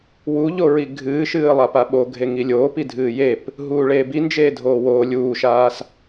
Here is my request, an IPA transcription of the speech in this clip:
w u ʎ o ɹ i ɡʱ ɨː ʃ ɨː lˠ a p a ɓ o ɡʱ e ŋ i lʲ oː p i dʱ ɨː j e p | ɦ uː ɭ eː b i n d͡ʒ eː dʱ oː w oː lʲ uː ʃ aː s

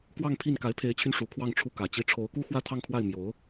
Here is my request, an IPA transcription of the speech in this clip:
k w ɑ˥˧ ŋ pʰ i˥˩ n k a˧˥ ɪ̯ pʰ e˧˥ ɪ̯ t͡ɕʰ y˧ n ʂ u˧˥ kʰ w ɑ˥˧ ŋ ʈ͡ʂʰ u˥˩ k ä˨˩ t͡ɕ i˧˥ ʈ͡ʂʰ o˧˥ ʊ̯ k u˥ x w ä˥ t̪ʰ ɑ˥˧ ŋ kʰ w a˥˩ ɪ̯ m j o˧˥ ʊ̯

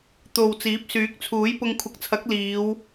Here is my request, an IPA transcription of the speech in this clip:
t̪ o˨ w t͡s iː˨˥ p̚ s yː˨˥ k̚ t͡sʰ uː˨˥ j p ʊ˧ ŋ kʷʰ ɐ˨ k̚ t͡sʰ ɐ˨˥ k̚ l iː˨˧ w

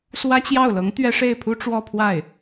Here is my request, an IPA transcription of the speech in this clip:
s w ä˥ t͡ɕ j ɑ˥˩ ʊ̯ l ɤ˧˥ ŋ t̪ ɥ ɛ˥ ʂ e˥˩ ɪ̯ pʰ u˥ ʈ͡ʂ w ɔ˥˧ pʰ w a˥˩ ɪ̯

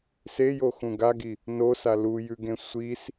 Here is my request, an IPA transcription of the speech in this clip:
s e j o x ũ ɡ a ɡ i | n o s a l u j ʉ ɡ ẽ sʷ i s

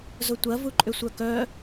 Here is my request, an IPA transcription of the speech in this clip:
z ʊ tʷ ɐ v u ǃʼ ʏ sʷ œ k œ

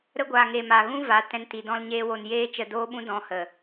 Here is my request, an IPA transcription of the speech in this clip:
ɾ ə˦ ɡʷ a˨ ŋ e˨ m a˨ ɣ ũ˦ v a˨˦ t ɛ̃˦ n t i˧ d ɔ̃˧ l ɲ eː˧ w o˨ n j eː˦ t͡ʃ ə˧ d oː˦ ɓ ũ˦ d ɔ̃˦ h ə˨

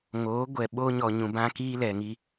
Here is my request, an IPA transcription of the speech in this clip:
ŋ oː˨˦ ɡʷ ɛ˨ ɓ o˦ ɲ ɔ˨ ɲ ũ˨ b ã˦ k iː˦ l ɛ˨ ŋ i˦

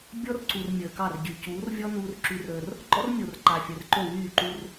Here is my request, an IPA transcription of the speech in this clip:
bʲ ɔ˦ r ǀ u˨ r mʲ əː˨ k ɑ˦˨ r ɟ y˨ c uː˨˦ r vʲ ɔ˦ n uː˦ r ǁ y˦ r əː˦ r | ɡ͡ǃ ɔ̰˦ r mʲ o˨ r ǃ a˨ fʲ əː˨ r ǃ o˦˨ w yː˦˨ ǃ u˦ r

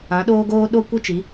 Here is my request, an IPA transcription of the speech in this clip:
ã˨˦ ɗ oː˦ ɡ oː˦ ɗ o˦ kʷ i˦ t͡ʃ i˨˦

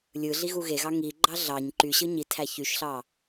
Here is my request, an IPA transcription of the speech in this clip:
lʲ ɯ ɮ i ɣ u ɣ e ɣ ɑ ŋ i ɡ͡ǃ ɑ ɮ ɑ ɲ ǃ y ɕ ɯ ɲ i tʰ æ ç y ʃ ɬ ɑ

